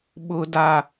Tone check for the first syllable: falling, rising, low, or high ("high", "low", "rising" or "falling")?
low